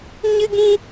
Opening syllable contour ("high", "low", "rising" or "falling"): high